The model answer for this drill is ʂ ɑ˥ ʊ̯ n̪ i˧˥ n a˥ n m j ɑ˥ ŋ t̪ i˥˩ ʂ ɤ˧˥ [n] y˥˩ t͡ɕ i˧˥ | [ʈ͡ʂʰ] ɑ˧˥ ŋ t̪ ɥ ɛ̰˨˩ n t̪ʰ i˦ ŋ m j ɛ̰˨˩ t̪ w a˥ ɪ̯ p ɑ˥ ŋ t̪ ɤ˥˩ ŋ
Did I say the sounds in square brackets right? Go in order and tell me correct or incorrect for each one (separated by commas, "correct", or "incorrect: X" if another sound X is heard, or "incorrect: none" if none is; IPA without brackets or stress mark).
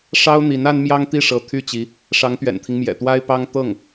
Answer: incorrect: t̪ʰ, incorrect: ʂ